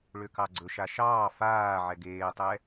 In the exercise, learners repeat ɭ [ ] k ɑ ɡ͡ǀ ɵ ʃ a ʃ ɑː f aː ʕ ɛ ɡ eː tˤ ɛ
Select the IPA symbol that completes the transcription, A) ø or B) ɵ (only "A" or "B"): A